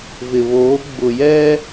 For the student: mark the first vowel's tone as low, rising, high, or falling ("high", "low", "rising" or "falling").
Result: low